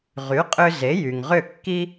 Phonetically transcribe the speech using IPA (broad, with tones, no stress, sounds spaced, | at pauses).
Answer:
ʁ y˩˥ qʼ ʏ˧ z e˩˥ j y˩ ŋ ʁ ʏ˥˩ kː i˥